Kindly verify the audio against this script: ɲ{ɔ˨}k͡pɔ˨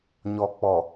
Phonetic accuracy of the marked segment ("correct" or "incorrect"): correct